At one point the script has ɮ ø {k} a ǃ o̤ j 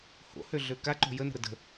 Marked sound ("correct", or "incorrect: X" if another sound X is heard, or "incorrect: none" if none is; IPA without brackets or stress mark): correct